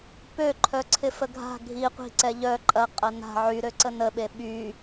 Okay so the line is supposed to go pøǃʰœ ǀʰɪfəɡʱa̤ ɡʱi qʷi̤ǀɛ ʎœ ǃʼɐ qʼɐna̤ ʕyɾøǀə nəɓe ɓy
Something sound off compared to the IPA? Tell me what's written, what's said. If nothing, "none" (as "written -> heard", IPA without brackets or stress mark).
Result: none